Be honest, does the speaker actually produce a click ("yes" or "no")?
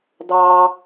no